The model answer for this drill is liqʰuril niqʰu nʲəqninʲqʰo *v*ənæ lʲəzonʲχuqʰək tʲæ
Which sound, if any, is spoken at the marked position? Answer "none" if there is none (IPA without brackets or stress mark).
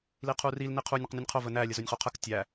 v